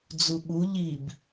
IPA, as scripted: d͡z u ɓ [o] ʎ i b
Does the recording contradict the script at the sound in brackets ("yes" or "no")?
yes